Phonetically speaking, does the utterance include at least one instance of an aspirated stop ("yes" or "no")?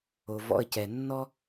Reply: no